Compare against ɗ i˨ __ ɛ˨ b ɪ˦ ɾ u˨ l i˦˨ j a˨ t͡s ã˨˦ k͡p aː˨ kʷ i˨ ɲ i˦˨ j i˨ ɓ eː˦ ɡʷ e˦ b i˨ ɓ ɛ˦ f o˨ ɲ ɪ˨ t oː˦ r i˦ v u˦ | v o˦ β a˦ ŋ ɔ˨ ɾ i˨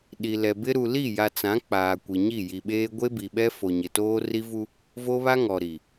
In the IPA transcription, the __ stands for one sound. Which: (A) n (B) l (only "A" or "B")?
B